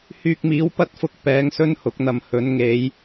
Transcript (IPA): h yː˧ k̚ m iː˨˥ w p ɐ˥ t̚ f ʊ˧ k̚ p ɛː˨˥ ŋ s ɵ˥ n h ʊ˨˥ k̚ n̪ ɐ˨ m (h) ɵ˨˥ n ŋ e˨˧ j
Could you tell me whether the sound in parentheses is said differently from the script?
no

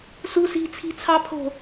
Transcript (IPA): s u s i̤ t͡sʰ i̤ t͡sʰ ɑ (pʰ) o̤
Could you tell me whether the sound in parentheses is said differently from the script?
no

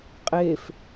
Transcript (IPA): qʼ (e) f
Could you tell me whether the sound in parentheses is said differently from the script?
no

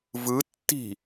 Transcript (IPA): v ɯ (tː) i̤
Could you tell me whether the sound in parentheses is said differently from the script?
no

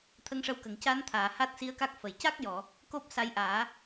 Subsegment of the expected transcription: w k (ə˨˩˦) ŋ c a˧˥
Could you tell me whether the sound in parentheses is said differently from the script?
yes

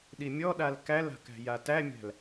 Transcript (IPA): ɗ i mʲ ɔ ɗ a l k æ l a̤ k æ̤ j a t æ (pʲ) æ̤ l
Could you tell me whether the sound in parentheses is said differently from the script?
yes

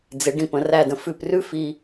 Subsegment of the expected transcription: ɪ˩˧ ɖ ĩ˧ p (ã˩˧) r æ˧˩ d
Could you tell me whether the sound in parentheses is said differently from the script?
yes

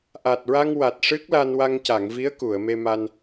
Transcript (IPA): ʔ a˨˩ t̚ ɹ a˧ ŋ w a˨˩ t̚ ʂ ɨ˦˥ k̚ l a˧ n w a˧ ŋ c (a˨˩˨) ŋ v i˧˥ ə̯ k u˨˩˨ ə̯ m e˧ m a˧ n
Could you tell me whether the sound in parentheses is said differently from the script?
no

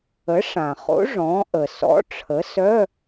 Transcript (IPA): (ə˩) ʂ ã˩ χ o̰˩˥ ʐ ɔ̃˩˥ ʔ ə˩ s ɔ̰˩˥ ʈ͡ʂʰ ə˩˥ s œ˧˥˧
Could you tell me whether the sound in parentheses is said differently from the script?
yes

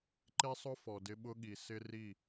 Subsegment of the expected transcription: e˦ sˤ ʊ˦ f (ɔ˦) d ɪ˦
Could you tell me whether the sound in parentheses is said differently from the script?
yes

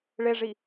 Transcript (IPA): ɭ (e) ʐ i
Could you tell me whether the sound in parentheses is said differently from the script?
no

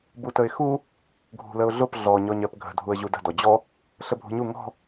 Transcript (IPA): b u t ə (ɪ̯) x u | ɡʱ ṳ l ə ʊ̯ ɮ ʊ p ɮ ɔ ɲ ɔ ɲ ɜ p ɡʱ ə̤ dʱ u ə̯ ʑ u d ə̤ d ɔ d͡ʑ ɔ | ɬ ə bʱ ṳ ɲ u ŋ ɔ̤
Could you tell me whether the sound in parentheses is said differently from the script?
no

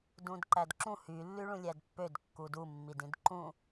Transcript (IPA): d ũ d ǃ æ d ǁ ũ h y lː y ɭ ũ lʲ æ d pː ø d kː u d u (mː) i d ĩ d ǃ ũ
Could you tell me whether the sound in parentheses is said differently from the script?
no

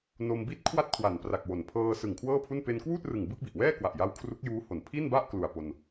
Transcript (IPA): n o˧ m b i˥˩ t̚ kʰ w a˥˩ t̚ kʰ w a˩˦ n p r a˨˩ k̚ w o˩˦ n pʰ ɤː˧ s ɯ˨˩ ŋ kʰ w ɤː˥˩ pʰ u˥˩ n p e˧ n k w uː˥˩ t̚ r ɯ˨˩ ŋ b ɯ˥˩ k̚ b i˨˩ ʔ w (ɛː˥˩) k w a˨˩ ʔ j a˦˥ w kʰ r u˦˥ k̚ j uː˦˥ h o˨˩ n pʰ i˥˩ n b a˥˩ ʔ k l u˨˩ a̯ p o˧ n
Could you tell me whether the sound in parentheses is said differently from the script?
no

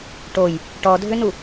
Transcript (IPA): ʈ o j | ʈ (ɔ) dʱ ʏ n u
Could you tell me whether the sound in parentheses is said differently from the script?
no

